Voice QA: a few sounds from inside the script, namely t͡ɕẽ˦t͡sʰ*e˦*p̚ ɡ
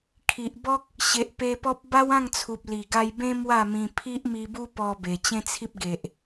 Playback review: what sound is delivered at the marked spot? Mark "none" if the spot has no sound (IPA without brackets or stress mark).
i˦